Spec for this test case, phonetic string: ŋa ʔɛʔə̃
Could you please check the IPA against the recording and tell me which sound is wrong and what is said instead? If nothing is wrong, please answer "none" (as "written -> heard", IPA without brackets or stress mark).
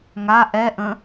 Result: none